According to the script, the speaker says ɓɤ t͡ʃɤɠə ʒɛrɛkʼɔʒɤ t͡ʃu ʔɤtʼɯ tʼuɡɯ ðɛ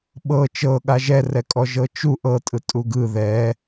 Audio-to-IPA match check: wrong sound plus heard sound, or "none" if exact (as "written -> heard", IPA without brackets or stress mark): ə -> a